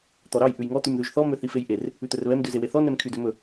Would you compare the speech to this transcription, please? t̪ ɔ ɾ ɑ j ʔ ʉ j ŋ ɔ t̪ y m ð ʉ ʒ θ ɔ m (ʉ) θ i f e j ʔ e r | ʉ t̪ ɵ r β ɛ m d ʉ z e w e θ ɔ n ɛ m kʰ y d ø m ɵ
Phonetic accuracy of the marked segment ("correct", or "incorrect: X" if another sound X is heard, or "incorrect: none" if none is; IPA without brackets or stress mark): incorrect: ø